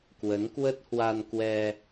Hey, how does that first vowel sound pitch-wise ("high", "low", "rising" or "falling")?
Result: rising